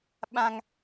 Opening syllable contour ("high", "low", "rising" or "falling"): high